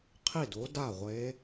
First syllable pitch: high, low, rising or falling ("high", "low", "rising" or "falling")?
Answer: falling